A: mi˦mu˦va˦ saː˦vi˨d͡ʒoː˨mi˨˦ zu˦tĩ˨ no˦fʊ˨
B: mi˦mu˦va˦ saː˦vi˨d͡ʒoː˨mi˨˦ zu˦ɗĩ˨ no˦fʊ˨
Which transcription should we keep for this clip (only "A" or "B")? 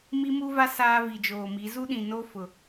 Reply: B